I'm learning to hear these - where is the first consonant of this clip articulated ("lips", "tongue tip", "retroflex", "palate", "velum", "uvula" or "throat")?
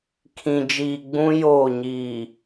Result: velum